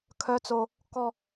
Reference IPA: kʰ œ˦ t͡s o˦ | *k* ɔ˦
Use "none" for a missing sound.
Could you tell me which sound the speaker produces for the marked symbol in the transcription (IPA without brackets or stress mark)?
k